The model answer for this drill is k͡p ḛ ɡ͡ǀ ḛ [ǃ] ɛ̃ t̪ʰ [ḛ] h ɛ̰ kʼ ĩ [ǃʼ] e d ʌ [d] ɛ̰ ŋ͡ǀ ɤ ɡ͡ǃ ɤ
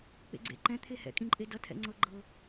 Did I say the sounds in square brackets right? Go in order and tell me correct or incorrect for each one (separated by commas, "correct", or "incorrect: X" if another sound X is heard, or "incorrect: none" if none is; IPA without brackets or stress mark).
correct, incorrect: e, correct, incorrect: tʰ